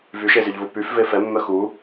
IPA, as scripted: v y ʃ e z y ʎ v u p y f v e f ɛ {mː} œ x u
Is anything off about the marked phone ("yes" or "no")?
no